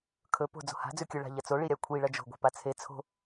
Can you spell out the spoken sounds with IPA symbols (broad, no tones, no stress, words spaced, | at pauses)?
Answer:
kʰɵ po̤ d͡zo̤ha̤ d͡zʉkʲɵ ɭa̤ʎɐt͡so ɭiɾʲakʷʰi ɭɐd͡ʒo̤ ɡʷe̤pat͡sʰe t͡sʰo̤